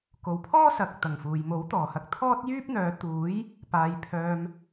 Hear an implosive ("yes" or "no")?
no